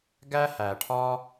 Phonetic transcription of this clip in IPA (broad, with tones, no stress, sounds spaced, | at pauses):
ɡ æ˦ h æ˨ ʈʰ ɒ˦